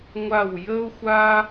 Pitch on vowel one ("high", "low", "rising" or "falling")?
falling